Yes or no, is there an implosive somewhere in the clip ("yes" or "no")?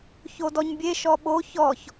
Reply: yes